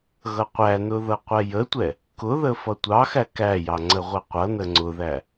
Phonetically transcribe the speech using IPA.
ɣ ʌ qʷ æ n ʊ ð ʌ qʷ ɛ j ə tʷ ɛ | k ʊ ð ə f ʌ tʷ ɑ x æ k æ j ɑ ŋ͡ǀ ə ʁʷ ɛ qʷ ʌ n ə ŋ͡ǀ ʊ ð æ

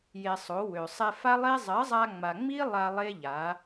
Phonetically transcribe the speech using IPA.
j e˧ sˤ o˨˦ w ø˨ sˤ ɛ˧ f a˦ lˠ e˦ zˤ ɜ˨˦ zˤ a˧ ŋ͡m a˨ ŋ͡m i˦ lˠ a˧ lˠ e˦ ʎ a˨˦

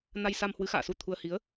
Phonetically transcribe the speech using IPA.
n a˧ j s a˧ m h w ɨ˨˦ x a̰ː˧˨ s u˧ t̪ʰ u˧ ə̯ h i˨˦ ə̯

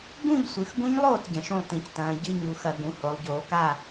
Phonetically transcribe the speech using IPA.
ɡ ũ˥˩ ʎ sʷ ɨ˩˧ x ɡ ũ˦˥ ɲ lˠ oː˥˩ t ɟ ɐ̃˩˧ ʃ ũ˥˩ lˠ t ĩ˧˩˧ c t ɐ̃ː˩˧ ɟ ɨ˧˥˧ ɲ u˩˧ x ɐ˧˩˧ ɡ ũ˩˧ h o˩˧ lˠ ɟ oː˩˧ k a˥˩

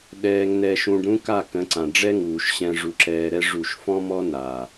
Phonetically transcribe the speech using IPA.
ɗ ɛː˧ ŋ n ɛ˧ ʃ ũ˧ ɖ ɾ ũ˦ k a˦˨ k ə̃˨˦ ǀ ã˨ ɖ͡ʐ ɛ˦ ŋ uː˨ ʃ ɕ ɛ̃˧ ʐ u˧ ǁ ɛː˧ ɾ ɛ˦ ʐ u˦˨ ʃ f ɔ̃˦ m ɔ˦ n a˨

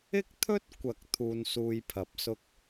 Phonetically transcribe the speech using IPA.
ɪ˥ k̚ t̪ʰ ɵ˥ t̚ kʷ ɐ˨ k̚ t̪ʰ uː˧ n s uː˧ j pʰ ɐ˨ p̚ s ʊ˥ k̚

